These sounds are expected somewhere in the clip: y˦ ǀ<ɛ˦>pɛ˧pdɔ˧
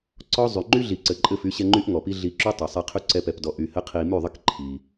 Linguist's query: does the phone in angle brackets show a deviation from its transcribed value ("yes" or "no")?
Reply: no